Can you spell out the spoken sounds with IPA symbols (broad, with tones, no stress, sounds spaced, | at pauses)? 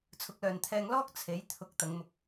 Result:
t͡sʰ ʊ˨˥ k̚ l œː˨ n t̪ʰ ɛː˧ ŋ l ɔː˥ k̚ t͡sʰ e˨˥ j t̪ʰ ʊ˧ k̚ t̪ ɐ˨˧ ŋ m ʊ˧ k̚